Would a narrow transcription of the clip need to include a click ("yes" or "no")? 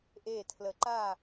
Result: yes